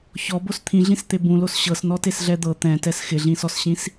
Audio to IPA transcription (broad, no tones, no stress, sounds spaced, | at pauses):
ç ɔ b o s t̪ʰ ĩ ɮ ĩ s t̪ e b ũ l o s ɕ ɤ s n ɔ t e s ɮ ɛ d̪ ɤ t̪ ɛ̃ t ɛ s x ɪ ɮ ĩ s ɔ s ɕ ĩ s